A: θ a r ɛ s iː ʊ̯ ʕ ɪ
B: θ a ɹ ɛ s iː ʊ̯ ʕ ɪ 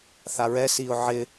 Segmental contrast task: B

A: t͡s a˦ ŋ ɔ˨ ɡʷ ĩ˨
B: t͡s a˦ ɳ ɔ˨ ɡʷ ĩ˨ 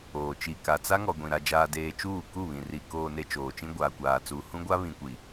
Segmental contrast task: A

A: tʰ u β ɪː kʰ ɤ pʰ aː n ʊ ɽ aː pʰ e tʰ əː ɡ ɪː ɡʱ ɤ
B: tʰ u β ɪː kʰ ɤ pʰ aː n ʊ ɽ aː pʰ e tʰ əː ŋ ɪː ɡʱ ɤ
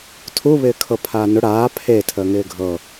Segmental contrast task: B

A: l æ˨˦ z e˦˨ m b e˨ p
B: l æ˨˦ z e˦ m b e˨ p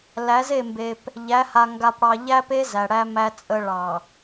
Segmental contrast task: A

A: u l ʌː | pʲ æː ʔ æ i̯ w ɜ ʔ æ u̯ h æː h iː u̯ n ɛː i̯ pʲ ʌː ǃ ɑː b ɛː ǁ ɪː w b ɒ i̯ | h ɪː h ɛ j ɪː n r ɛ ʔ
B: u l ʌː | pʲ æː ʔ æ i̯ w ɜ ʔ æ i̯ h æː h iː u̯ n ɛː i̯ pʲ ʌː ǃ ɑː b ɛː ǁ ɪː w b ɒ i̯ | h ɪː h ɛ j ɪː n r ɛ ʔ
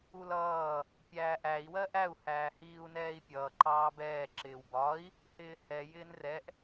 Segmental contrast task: A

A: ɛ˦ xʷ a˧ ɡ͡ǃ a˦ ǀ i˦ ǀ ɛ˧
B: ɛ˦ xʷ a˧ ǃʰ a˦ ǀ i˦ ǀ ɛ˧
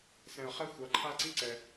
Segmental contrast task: B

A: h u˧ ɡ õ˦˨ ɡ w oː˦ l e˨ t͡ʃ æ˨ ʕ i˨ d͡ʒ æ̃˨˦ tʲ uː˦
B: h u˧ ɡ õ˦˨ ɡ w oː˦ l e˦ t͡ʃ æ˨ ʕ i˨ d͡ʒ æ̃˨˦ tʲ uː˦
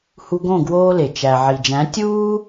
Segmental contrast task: A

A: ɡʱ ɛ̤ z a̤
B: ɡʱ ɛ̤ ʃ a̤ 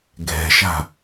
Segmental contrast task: B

